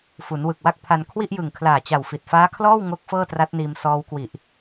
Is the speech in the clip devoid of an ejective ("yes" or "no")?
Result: yes